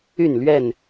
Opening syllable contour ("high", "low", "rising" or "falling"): falling